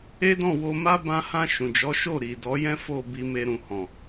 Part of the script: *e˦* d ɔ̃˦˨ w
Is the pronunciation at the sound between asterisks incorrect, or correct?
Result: correct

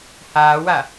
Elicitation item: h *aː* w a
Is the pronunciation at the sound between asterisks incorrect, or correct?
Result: correct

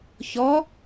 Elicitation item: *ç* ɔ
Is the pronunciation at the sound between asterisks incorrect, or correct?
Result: correct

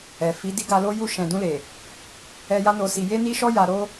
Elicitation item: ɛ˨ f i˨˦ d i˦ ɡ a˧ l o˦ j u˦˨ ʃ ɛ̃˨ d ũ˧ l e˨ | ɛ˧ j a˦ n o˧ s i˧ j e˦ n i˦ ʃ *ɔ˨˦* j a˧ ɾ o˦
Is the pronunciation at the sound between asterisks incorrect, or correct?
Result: incorrect: ɔ˦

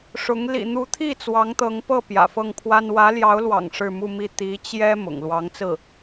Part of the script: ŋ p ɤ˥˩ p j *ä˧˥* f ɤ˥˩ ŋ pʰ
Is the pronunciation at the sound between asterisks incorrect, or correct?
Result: incorrect: ä̰˨˩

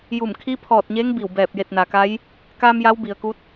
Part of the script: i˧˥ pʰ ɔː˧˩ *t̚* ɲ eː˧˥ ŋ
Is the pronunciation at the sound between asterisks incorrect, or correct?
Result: correct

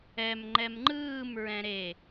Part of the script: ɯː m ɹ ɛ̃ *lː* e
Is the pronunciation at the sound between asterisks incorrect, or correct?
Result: incorrect: ɾ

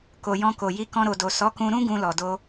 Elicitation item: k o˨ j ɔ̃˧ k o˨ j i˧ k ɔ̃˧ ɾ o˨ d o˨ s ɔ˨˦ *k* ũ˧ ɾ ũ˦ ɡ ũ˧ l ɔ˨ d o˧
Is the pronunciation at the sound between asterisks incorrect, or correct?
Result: correct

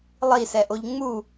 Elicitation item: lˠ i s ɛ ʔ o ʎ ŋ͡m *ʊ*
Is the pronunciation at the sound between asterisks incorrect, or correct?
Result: incorrect: u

